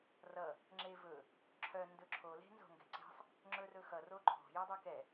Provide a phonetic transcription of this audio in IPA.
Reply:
rʌ | ŋ͡ǁevɵ | ǁʰœ ndɵǁʰo le̤nzo̤ŋɡɛ̤ǀe̤sˤ | ŋ͡ǁɵrɵxʌ roǃʰo̤ jedˤœkɛ

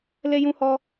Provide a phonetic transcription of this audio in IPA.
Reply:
le˦jũ˦hɔ˦

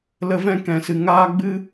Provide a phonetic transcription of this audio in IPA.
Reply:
lə˦vɛ̃˦ kɛ̃˧sɨ˧ ŋaː˦ ɡ͡bɨ˦

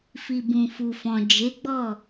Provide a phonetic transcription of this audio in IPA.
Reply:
fi˨bũ˨fu˨fɔ̃˨ d͡ʒe˨˦ɡ͡bɔ˦˨

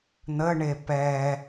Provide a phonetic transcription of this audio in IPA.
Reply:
n̪əɳe pɛ

